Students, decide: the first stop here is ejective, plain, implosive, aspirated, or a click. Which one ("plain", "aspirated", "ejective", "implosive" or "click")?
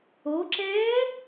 click